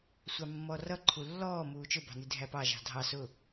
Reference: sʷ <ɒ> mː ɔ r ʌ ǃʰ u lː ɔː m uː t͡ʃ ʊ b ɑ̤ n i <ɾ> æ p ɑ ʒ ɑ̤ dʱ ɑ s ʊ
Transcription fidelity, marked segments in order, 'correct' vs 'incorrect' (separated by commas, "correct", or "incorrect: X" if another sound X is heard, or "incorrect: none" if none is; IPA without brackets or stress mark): incorrect: ɑ, incorrect: dʱ